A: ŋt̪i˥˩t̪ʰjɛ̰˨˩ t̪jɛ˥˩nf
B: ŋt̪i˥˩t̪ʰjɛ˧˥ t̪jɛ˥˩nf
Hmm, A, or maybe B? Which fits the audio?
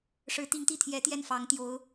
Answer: B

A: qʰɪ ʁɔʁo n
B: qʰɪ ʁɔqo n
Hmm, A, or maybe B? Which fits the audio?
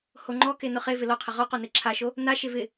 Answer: B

